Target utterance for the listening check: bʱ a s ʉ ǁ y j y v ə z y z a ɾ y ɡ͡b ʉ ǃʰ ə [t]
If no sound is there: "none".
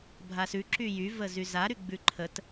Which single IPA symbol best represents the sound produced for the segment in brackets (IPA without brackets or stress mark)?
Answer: t